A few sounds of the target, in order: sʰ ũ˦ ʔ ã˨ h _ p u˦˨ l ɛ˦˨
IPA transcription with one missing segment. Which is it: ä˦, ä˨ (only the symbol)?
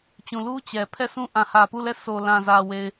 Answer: ä˨